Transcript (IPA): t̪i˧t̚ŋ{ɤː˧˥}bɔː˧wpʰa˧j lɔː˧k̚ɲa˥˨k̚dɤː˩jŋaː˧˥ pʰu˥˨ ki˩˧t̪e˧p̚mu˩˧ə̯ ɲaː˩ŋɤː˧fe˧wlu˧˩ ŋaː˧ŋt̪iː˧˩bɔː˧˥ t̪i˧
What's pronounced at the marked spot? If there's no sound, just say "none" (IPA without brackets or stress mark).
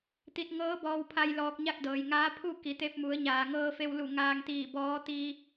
ɤː˧˥